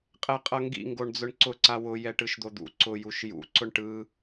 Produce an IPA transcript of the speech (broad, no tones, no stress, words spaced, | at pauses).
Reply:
qʼɛqʼʌŋɡḭ ŋɡoɳd͡zʊɳǀʊ ǀawʊ jɛʈɯʃd̪od̪ṵ ǀʊ juʃjṵ ǀʊɳʈɯ